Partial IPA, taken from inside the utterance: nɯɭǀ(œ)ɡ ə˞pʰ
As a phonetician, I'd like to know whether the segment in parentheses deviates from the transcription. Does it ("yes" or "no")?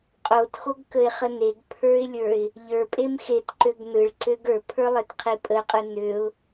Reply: yes